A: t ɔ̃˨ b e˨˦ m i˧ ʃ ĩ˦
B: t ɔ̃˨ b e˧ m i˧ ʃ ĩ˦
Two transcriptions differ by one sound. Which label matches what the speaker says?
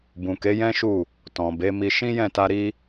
A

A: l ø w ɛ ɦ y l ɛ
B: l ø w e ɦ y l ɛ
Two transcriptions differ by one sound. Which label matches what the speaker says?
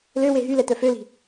B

